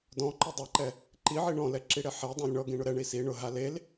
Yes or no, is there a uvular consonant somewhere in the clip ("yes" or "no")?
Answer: no